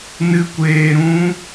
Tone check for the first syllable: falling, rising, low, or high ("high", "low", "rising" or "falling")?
high